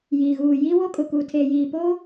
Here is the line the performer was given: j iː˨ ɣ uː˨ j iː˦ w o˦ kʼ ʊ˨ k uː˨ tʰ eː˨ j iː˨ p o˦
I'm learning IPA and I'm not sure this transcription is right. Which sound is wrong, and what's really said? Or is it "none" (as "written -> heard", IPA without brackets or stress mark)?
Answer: none